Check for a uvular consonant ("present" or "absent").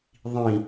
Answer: absent